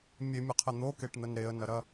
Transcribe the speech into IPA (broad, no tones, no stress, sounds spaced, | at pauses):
mʲ e mʲ ə qʰ ɛ n̪ o k e ʈ n̪ ə n ɾ e ə̯ n ɐ ɾ ɐ